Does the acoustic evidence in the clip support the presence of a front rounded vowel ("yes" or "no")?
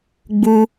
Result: no